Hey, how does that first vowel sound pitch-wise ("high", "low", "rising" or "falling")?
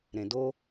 low